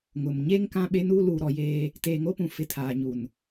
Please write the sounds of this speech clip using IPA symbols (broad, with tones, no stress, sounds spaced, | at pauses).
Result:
ŋ ʊ˨ m ɲ e˦ ŋ k ã˦ ɓ e˦ n uː˦ l uː˨ ɾ ɔ˨ j eː˦ | t eː˨ ŋ o˦ p ũ˨ f ɪ˨ tʰ aː˨ ɲ u˨ n